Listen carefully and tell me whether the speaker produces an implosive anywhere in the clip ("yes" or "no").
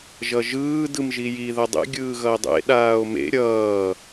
yes